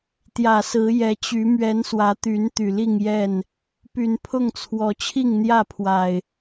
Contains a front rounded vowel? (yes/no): yes